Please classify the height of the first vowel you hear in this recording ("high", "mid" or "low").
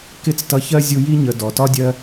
high